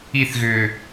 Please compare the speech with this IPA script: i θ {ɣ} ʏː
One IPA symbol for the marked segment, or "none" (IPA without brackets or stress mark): ɣ